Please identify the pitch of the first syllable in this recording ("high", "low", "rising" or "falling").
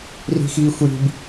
high